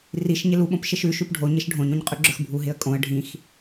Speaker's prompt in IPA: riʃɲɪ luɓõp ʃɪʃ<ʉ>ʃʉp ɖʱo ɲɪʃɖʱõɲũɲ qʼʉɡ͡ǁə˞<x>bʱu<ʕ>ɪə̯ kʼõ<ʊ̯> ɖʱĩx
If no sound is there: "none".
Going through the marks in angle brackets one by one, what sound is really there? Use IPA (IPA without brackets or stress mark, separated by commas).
ʉ, x, ɦ, ə̯